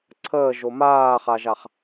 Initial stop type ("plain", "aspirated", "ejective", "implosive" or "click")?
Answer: click